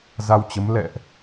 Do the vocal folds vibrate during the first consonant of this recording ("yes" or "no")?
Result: yes